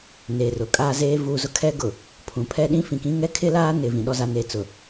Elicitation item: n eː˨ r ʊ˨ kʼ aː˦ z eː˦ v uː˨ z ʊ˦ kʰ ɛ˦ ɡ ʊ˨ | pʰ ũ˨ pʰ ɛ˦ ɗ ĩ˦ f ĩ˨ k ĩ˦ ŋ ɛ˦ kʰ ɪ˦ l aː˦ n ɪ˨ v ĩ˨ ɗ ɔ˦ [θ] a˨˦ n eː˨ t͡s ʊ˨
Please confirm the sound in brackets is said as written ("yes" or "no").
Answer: no